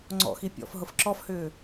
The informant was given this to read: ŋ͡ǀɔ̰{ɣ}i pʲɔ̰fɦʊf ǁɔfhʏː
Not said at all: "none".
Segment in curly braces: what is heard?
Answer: x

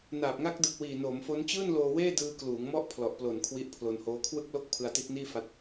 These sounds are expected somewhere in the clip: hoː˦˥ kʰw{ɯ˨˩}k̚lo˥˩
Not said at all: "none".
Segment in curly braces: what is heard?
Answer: ɯ˥˩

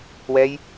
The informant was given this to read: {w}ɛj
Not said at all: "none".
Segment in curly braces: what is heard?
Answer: w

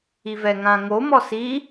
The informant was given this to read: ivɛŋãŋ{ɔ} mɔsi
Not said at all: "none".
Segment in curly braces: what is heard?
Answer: o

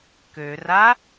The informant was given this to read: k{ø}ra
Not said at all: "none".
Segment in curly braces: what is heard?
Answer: ø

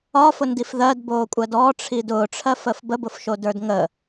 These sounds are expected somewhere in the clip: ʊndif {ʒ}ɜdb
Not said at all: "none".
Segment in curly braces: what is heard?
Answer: ð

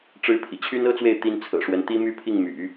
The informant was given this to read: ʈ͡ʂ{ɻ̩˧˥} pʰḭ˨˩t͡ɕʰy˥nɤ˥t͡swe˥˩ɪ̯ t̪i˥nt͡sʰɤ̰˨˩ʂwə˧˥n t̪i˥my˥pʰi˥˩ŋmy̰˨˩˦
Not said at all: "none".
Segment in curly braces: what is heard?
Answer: ɻ̩˥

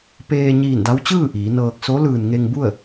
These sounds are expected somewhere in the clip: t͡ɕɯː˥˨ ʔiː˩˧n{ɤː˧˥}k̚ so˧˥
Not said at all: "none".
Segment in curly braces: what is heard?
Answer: ɤː˧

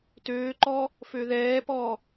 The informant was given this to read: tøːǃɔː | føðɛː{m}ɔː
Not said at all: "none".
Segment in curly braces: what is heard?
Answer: p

